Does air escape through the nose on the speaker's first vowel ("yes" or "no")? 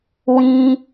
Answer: yes